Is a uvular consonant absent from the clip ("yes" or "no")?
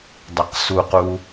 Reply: no